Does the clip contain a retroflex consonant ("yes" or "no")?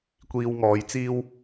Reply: no